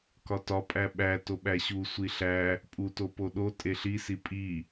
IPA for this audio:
k ɒ t ɒ pʼ æ ɓ æ t o ɓ æ ɕ u sʷ i ɬ æ | pʼ u t o p o ɗ o tʼ e ɬ i s i pʼ i

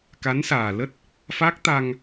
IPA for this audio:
k a˨˦ n s aː˨˩ l ə˦˥ t̚ | f a˦˥ k̚ t̪ a˧ ŋ

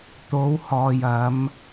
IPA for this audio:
t̪ o˨˧ w h ɔː˨ j ɐ˨˧ m

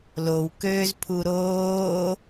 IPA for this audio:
l o w k øː z pʰ u ɾ oː

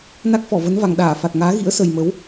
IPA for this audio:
n a˦˥ k̚ f ɔ˧˩ v ə˨˦ n v a˨˩ ŋ ɗ aː˧˩ f a˨˩ t̚ ŋ aː˨˦ ɣ ḭ˧˥ ə̯ s ə˨˩ j m ə˨˦ w

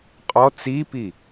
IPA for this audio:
qʼ ɔ t͡s i p i

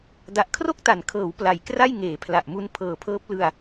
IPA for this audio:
d a˨˩ ʔ kʰ r o˥˩ k̚ t a˩˦ n kʰ ɤː˩˦ w p l a˨˩ j k r a˥˩ j ŋ eː˩˦ pʰ l a˨˩ ʔ m u˦˥ n pʰ ɤː˨˩ pʰ ɤː˦˥ p̚ l ɯ˧ a̯

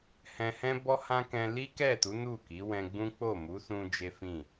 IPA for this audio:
h ɛ̃˧ h ɛ̃˦ b ɔ˦ h ã˦ k ɛ̃˧ l i˦ k ɛ˦˨ t u˨˦ n u˦˨ k i˨˦ w ɛ̃˧ ɡ͡b ũ˦ k͡p o˦˨ m u˨˦ s ũ˧ d͡ʒ e˦ f ĩ˦˨

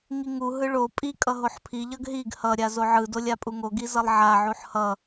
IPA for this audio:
ŋ i ŋ u ɦ ɯ ɭ o pʼ i kʼ ʌ ɦ o ħ pʰ i ʎ ʌ ɡ ɦ i ɡ h ʌ ɾʲ a z o ʕ ɯ d o lʲ a pʼ u ŋ o ɡ i z ʌ lˠ ʕ a ʕ u ħ h ʌ

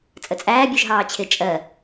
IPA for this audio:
t͡sʼ ə t͡sʼ æː bʲ u ʒ ɦ ɑː t͡ɕʰ ɪ t͡ʃʼ ɜ

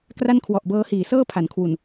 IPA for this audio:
k r a˥˩ n kʰ w ɔ˨˩ ʔ b ɤː˦˥ h iː˩˦ s ɤː˥˩ pʰ a˩˦ n kʰ w u˨˩ n

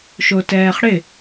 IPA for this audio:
ʃ o t ɛː χ ɽ ɪ

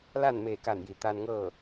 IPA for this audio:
l aː˥˨ n m eː˧˩ k aː˧˩ n j i˩ t̪ aː˧ n ŋ ɤː˥˨

